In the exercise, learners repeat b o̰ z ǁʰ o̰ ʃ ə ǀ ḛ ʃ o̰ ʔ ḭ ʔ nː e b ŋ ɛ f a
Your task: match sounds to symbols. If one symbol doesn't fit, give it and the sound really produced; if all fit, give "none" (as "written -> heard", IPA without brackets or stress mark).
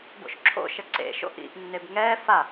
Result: z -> ʃ